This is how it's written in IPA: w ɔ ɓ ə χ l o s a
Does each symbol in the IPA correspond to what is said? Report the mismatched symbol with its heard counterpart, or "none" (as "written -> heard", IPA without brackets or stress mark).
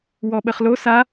none